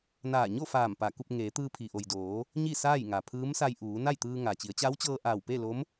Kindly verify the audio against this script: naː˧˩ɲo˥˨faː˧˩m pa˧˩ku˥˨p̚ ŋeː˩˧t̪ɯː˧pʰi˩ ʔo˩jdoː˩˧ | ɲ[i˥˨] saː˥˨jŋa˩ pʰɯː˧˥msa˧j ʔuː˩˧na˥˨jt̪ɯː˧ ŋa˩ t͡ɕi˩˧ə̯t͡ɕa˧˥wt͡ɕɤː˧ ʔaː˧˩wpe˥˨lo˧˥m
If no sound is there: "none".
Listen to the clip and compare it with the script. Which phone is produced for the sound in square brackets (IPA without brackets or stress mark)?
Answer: i˥˨